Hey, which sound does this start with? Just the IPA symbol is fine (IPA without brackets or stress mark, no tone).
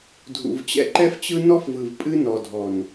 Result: dʱ